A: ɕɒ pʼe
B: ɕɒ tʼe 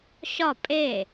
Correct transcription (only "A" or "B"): A